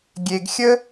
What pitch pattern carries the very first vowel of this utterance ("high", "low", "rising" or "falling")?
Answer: low